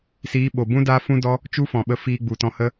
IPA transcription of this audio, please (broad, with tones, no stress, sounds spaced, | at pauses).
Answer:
s iː˨˦ ɓ o˨ b ũ˦ d aː˦ f ũ˦ d ɔ˦ | t͡ʃ u˦ f ɔ̃˨ ɓ ə˧ f iː˧ ɡ͡b u˨ t ɔ̃˧ h ə˦